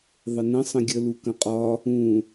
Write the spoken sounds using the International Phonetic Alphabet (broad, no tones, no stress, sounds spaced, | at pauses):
ðˤ ə n ə̃ sˤ ə̃ ɡʲ ə l u k ə̃ qʼ ɒ | ũ